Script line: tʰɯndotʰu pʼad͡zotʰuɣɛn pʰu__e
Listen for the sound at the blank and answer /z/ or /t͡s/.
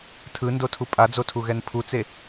t͡s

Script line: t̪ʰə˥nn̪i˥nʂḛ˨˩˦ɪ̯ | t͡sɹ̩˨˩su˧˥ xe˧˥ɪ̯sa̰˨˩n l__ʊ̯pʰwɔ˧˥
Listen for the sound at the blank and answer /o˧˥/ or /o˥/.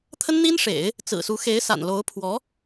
o˧˥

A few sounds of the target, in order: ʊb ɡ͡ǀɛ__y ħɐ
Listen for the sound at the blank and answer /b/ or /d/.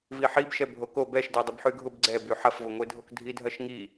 b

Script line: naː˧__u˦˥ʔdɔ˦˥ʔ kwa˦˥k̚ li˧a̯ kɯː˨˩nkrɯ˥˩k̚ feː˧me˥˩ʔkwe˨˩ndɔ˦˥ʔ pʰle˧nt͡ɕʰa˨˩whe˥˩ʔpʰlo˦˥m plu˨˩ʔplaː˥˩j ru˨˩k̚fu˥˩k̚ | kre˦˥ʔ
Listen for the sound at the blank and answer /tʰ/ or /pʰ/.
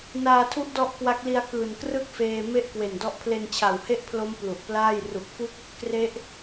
tʰ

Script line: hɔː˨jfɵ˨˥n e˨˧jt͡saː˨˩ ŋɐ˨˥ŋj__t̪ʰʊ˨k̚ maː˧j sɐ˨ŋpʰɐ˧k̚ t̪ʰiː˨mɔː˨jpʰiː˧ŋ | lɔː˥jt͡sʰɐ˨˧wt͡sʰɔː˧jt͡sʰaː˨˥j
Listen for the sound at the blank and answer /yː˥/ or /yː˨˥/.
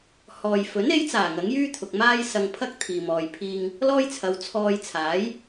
yː˥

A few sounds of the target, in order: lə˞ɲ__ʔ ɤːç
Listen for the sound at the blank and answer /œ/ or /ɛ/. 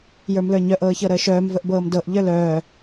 œ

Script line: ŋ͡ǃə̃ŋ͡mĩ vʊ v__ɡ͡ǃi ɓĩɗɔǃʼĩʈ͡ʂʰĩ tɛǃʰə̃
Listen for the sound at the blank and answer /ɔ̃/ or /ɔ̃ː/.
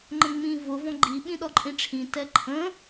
ɔ̃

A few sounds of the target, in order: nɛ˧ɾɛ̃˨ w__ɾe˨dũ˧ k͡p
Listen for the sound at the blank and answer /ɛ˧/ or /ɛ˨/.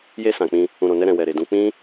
ɛ˨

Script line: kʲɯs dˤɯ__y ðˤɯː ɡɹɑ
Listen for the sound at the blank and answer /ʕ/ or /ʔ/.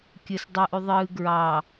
ʔ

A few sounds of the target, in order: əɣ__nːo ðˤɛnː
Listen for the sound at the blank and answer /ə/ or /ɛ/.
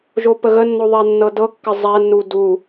ə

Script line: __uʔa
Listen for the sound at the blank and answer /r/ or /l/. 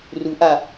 r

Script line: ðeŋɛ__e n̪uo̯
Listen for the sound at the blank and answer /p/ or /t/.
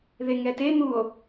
t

